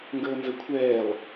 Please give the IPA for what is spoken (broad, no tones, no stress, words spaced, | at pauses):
ŋɡəːnzəkʷʰɛːlˠ